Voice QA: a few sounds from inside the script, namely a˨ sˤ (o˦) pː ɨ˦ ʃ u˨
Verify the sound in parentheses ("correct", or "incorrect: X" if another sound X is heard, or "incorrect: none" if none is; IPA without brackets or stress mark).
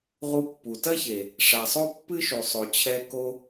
correct